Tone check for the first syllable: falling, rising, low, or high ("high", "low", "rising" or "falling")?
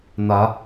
rising